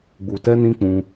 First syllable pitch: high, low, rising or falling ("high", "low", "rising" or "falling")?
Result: low